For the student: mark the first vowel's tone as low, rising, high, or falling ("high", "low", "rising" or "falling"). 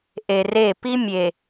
low